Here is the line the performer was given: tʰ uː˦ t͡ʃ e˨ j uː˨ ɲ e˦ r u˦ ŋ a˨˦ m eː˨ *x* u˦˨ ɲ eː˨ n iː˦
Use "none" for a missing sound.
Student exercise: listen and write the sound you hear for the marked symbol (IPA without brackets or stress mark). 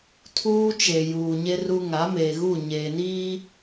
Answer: ɣ